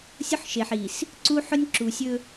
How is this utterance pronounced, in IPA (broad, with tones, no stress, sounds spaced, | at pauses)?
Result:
sʲ ʊ˦ ħ ʃ e˨ ħ i˨ s | ǀ u˦ ħ ʊ˦ nʲ ǁ u˨ sʲ ɵ˦